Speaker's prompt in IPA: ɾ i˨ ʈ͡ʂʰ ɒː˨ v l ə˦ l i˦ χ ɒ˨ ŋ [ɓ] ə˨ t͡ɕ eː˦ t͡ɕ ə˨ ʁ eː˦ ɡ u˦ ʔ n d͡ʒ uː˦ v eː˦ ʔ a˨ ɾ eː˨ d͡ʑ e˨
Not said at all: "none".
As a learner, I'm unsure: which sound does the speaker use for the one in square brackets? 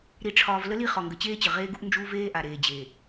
ɡ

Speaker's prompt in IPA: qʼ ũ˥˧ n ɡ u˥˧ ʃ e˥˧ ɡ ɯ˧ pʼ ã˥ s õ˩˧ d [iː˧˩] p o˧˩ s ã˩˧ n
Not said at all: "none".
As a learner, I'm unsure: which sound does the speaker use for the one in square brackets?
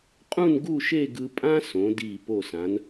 iː˧˩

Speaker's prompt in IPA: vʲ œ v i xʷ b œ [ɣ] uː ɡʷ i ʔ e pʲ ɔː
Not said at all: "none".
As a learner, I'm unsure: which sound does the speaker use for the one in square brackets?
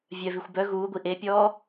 ɣ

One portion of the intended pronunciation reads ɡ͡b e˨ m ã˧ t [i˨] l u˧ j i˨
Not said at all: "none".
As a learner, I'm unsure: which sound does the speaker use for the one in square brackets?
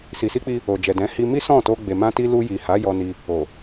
i˧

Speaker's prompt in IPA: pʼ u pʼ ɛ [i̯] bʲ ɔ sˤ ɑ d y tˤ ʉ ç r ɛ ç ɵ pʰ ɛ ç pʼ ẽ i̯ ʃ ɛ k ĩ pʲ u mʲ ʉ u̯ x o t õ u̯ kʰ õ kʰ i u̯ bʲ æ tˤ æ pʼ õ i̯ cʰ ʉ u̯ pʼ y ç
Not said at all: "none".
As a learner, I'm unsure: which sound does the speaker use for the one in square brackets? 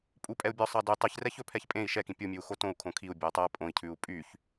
u̯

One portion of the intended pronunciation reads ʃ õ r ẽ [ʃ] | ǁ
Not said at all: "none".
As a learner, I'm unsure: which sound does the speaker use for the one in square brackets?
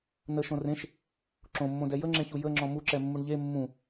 ʃ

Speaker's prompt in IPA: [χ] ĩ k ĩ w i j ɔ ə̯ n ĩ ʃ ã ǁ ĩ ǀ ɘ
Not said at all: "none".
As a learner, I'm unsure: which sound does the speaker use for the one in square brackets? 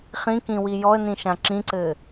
χ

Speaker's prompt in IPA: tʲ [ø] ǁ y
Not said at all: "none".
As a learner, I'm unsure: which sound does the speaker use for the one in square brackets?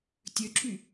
ø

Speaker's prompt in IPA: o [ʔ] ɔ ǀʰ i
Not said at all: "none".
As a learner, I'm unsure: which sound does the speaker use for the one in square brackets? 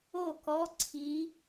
k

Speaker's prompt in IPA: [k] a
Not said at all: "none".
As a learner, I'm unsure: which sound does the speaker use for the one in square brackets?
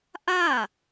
ʔ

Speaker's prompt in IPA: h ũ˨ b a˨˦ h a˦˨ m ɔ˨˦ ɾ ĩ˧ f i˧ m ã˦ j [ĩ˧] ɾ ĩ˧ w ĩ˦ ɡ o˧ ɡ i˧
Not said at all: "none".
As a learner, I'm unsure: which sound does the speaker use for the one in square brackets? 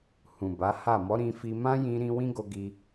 ĩ˧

